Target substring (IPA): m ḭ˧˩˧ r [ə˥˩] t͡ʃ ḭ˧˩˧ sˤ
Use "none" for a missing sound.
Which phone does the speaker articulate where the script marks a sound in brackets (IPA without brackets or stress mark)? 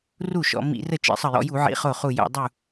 ə˥˩